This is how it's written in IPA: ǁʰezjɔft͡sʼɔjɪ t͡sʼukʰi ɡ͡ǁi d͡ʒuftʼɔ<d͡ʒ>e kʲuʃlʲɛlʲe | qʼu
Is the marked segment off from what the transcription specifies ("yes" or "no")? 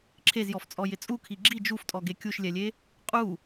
yes